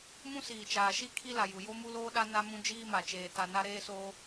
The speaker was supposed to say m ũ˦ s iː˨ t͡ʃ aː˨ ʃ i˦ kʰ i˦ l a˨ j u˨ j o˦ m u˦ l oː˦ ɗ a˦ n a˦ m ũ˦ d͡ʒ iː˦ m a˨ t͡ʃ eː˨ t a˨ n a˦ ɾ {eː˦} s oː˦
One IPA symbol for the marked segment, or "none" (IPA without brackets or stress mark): eː˦